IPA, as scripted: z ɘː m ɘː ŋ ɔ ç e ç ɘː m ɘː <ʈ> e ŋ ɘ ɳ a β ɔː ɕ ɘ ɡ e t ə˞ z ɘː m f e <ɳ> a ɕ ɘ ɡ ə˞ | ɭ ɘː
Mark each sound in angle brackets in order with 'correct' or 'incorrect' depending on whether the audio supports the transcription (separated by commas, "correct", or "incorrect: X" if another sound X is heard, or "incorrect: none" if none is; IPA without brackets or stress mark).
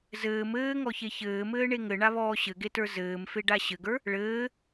incorrect: ɳ, incorrect: ɖ